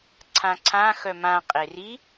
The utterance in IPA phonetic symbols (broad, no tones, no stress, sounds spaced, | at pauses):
ǀʰ ã ǀʰ ã x œ m ã qʼ e r i